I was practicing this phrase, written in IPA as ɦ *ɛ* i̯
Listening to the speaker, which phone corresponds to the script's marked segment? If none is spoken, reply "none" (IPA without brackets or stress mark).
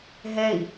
ɛ